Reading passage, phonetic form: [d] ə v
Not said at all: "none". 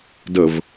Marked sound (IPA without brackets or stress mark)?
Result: d